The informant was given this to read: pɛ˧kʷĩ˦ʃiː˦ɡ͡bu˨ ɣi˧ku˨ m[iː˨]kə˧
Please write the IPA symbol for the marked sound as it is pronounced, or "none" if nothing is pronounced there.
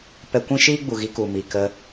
i˨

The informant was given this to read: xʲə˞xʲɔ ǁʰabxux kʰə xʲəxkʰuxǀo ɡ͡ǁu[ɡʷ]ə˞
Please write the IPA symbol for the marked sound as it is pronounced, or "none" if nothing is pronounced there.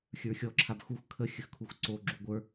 ɡʷ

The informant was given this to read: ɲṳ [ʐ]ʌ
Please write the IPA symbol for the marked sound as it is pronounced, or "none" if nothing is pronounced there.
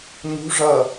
ʐ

